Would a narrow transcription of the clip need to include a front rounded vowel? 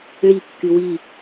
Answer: yes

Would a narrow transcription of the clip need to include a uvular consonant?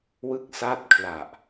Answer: no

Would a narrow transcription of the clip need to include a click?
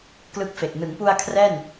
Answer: no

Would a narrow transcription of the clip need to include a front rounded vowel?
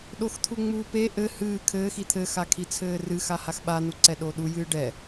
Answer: no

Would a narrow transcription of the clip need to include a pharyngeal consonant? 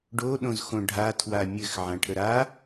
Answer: yes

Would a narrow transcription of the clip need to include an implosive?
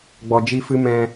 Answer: no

